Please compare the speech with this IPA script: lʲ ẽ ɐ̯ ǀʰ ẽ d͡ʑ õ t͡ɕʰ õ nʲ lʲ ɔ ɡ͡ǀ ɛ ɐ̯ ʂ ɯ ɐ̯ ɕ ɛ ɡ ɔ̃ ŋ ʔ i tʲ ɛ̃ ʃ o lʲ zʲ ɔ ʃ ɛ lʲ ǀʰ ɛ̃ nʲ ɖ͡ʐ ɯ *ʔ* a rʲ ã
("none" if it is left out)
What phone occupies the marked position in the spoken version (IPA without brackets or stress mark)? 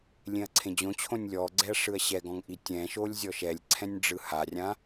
h